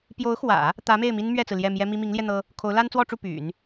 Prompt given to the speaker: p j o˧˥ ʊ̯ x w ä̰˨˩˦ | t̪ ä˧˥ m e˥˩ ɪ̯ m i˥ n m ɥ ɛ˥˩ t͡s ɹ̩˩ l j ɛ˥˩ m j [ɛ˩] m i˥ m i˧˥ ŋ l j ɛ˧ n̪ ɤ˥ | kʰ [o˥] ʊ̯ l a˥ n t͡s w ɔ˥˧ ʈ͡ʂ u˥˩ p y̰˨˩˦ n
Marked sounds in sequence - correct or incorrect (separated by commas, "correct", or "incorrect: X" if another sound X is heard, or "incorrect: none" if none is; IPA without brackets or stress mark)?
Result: incorrect: ɛ˥, incorrect: o˧˥